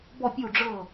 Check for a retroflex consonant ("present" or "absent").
present